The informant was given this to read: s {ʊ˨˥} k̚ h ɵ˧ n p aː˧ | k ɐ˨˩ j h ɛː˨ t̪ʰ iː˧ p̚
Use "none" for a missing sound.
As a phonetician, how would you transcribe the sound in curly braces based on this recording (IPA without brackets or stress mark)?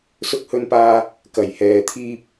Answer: ʊ˧